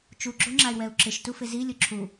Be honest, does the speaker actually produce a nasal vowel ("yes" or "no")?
no